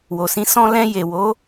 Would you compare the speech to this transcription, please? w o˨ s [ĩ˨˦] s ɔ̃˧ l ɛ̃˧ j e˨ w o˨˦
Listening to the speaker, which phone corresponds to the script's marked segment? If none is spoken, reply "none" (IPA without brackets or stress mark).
ĩ˨˦